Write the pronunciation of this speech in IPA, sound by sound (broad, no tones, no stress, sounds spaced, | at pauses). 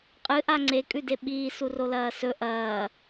qʼ ɨ ʔ a ŋ͡ǀ e kʼ ʉ d e ɓ iː s u r o l ɐː s ɵ ʔ ɐː